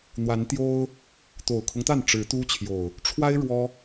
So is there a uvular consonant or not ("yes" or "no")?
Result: no